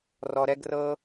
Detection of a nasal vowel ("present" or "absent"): absent